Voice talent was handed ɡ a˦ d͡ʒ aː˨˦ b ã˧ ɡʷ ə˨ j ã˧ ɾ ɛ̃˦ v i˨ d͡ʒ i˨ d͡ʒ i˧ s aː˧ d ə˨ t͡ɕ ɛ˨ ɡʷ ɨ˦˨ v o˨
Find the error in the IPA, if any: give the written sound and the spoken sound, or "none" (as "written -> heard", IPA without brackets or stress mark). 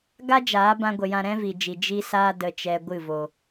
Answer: t͡ɕ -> t͡ʃ